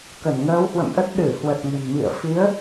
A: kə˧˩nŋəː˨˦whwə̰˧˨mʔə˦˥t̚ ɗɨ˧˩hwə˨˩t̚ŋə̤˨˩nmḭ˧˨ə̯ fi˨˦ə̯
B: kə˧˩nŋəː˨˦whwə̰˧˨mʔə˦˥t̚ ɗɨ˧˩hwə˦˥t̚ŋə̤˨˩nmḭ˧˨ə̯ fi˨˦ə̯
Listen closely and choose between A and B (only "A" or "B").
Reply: A